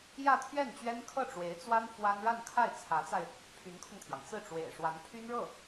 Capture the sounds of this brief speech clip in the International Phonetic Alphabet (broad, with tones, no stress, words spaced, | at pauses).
jä˥˧t̪ʰɥɛ˥˩nt͡ɕɥɛ˥n kʰɤ˥˩ʈ͡ʂwe˧˥ɪ̯t͡swa˥n fwa˥n ɻa˥˧nkʰa˥˩ɪ̯ t͡sʰä˧˥t͡sa˧ɪ̯ | pʰy˧˥nkʰʊ˧ŋt̪ʰjɑ˩ŋ t͡sɹ̩˥˩ʈ͡ʂwḛ˨˩ɪ̯ ʂwa˧˥npʰy˥nɻɤ˥˩